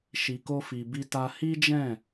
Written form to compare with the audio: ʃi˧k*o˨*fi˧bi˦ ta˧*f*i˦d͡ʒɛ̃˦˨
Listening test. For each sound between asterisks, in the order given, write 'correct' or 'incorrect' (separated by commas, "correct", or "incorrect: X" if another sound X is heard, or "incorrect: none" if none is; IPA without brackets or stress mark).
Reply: incorrect: o˦, incorrect: h